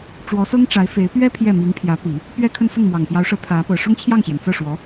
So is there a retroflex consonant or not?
yes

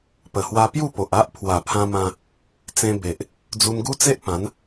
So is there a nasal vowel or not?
yes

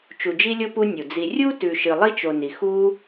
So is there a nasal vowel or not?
no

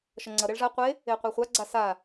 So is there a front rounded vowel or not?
no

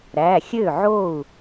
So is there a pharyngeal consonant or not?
yes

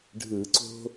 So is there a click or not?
yes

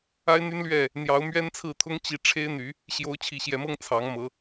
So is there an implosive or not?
no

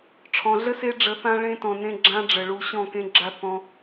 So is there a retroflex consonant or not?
yes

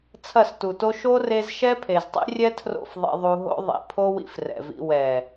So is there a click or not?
no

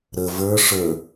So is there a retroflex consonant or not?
yes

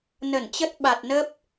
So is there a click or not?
no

